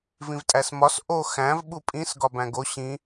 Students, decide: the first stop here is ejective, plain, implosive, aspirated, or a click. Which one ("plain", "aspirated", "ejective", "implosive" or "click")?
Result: ejective